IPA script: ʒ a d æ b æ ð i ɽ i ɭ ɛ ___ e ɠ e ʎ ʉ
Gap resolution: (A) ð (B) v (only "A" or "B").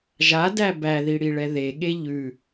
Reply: A